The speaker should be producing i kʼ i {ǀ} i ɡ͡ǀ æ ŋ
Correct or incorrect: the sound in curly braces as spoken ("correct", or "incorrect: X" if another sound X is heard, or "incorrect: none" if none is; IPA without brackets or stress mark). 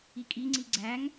incorrect: ŋ͡ǀ